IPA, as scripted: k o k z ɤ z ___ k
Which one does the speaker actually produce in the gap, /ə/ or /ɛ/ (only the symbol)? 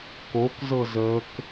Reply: ə